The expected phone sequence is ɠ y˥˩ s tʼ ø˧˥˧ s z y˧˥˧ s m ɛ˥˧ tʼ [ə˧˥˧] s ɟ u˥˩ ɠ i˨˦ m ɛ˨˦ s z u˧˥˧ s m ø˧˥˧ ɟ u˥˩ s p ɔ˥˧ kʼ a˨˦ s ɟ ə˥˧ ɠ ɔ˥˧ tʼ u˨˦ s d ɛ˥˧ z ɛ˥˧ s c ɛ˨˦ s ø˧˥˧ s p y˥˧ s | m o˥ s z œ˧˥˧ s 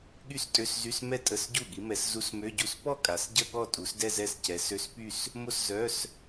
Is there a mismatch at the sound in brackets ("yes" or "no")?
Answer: no